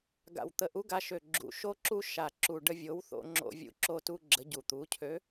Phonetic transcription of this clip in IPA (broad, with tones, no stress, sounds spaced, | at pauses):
ɡ a̰˨˩ w t̪ ə˨˩ ʔ u˨˥ ɡ a˧ ʃ ø˨˩ ɡ͡ǁ ṵ˨˩ ʃ o˧ ǁ u˧ ʃ a˨˩ ǁ u˨˩ ɖ ə˧ vʲ o˨˥ w θ o̰˧ ŋ͡ǁ o̰˧ vʲ ṵ˧ ǁ o˧ t u˧ ɡ͡ǁ ə˨˥ ɟ u˨˩ t̪ u˨˥ cʰ ø˨˥